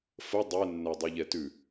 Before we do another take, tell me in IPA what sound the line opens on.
f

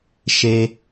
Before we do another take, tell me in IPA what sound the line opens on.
ʃ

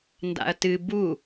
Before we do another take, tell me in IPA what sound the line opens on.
n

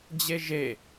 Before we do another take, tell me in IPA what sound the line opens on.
d͡ʑ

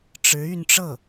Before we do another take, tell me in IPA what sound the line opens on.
ʈ͡ʂ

